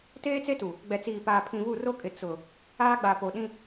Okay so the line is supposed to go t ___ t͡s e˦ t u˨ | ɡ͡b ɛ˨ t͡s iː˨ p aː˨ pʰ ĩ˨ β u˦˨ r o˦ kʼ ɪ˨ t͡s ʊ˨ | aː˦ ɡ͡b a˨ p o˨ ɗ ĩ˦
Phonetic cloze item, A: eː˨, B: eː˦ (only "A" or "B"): B